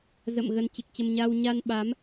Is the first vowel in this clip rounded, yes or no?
no